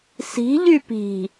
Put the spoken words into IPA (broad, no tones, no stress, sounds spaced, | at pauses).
s i̤ ʎ y p i̤